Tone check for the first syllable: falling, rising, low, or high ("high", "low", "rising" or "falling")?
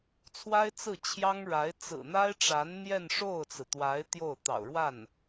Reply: high